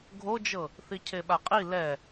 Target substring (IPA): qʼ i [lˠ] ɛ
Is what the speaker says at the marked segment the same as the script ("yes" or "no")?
no